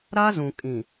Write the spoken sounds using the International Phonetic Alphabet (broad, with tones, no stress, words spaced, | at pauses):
ɾa˦zũ˨ kʼĩ˨